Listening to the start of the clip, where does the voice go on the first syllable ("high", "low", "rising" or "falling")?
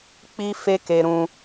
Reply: high